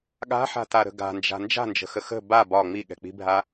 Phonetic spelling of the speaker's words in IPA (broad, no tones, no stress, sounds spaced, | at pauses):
ɠ a̤ ħ a̤ t a ɾ ə̤ ɡ a̤ n d͡ʒ a̤ n d͡ʒ a̤ n d͡ʒ ə̤ x ə x ə̤ b a b ɒ ŋ͡m i ɠ ɛ̤ k͡p i̤ bʱ a